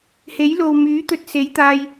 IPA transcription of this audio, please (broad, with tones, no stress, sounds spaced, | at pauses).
h e˨˥ j l o˨ w m yː˨˥ t̪ ɵ˧ t̚ s e˨˥ j t̪ aː˧ j